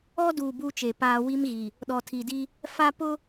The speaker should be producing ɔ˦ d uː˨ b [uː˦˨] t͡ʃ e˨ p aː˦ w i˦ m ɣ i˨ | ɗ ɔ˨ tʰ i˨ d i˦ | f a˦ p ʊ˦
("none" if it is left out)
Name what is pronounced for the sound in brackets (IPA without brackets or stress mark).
uː˦